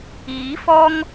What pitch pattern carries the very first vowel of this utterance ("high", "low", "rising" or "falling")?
rising